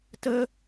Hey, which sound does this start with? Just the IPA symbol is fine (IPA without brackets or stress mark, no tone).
t